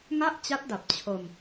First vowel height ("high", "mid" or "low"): low